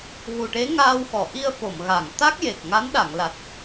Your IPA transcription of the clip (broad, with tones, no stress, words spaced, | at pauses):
ɣu˨˩ʈe˧˥ ŋaː˧wxɔ˨˩˨ ʔi˧ə̯fo˨˩˨mɣa˨˩˨ŋ t̪a˦˥k̚je˨˩k̚ ŋa˧˥nɗa˨˩˨ŋla˨˩t̚